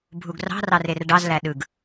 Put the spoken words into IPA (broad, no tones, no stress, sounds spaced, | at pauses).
bʱ u ɡ r ɑ̤ r ɑ r e r ɖ ɑ z l æ ɗ ɯ ɡ